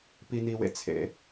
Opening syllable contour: low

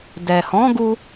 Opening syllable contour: low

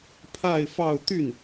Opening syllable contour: falling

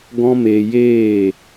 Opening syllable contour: high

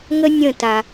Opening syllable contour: high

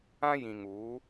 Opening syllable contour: high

